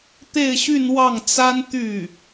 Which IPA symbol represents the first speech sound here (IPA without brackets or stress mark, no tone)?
t̪